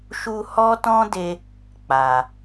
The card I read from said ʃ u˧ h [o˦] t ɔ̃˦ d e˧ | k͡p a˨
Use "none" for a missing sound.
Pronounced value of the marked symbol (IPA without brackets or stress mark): ɔ˦